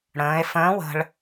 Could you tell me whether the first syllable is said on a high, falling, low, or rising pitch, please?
rising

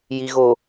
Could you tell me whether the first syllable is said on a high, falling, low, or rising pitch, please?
low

